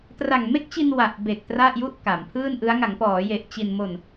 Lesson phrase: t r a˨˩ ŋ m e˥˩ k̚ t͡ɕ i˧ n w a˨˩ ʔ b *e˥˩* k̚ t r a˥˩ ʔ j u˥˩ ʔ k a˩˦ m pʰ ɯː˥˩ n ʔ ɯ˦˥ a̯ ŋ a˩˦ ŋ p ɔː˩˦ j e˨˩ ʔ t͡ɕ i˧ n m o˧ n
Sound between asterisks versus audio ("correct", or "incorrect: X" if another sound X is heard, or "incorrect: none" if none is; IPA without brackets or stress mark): incorrect: e˨˩